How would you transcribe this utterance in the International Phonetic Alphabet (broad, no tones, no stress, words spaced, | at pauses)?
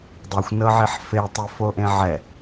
dˤuxʷnɤʕiħ fetˤɯfoʔẽ ʕɛ